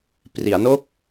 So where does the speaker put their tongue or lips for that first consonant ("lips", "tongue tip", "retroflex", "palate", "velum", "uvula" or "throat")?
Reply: lips